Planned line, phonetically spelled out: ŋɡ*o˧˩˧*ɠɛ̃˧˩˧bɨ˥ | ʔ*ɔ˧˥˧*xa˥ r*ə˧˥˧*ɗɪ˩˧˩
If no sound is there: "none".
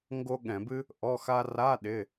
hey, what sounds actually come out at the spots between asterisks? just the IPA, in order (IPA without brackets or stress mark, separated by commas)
o˥, ɔ˧˥˧, a˧˥˧